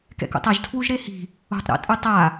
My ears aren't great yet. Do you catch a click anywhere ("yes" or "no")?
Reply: no